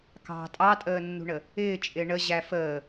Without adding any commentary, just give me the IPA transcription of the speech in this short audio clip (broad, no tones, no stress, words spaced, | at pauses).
kɑ̤ tʼɑtʼəːnːṳɳə | ɪːt͡ʃʼɪː ɳəʑæ fəː